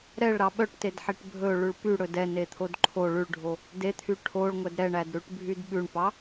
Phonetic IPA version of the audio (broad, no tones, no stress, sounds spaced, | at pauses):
ɾ ɛ ɭ ɾ ɑ ɓ œ ʈ t e d ħ e ʈ bʱ ɵ ɭ ʉ ɭ p y ɽ ɵ d ɛ n e t̪ʰ o d ǃʰ o ɭ ʉ ɭ ɖʱ o | d e t̪ʰ y ʈʰ o ɭ ŋʷ ɛ d ɾ ɛ ɳ æ d ɾ ʉ ʈ bʱ y d ɓ ʉ ɳ p ɑ